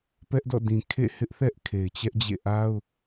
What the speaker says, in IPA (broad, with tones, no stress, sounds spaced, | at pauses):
p ɛ˦ ʔ d ɔ̰˦˨ d ĩ˨ kʰ ḛ˦˨ h ɪ˦ ʔ θ ɛ˦ ʔ kʰ e˨ ɪ̯ t͡ɕ ɛ˦ ʔ d͡ʑ ḛ˦˨ ʔ a˦ ʊ̯